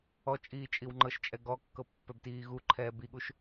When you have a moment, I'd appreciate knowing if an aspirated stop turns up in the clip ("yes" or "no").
yes